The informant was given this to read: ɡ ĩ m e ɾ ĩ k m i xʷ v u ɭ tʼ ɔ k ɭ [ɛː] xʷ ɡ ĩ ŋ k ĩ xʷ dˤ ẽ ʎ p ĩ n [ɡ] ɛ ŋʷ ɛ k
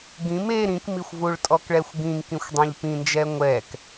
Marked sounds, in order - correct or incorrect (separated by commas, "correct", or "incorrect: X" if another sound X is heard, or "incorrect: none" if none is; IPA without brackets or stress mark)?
incorrect: ɛ, incorrect: d͡ʒ